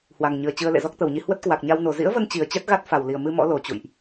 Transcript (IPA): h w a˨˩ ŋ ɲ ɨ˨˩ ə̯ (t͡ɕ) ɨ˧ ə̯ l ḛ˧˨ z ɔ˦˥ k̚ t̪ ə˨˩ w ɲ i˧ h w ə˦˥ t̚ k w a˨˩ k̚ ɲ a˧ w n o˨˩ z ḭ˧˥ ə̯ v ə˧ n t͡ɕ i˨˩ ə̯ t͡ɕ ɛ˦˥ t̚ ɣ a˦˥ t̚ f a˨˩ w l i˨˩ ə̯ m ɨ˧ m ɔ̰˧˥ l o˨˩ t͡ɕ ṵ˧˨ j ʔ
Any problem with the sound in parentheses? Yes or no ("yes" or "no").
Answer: no